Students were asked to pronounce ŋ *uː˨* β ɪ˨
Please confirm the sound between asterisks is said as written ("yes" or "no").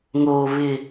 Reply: no